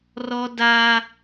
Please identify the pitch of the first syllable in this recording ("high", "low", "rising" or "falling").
high